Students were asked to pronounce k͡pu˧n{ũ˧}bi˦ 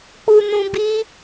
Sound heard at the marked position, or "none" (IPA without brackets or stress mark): ũ˧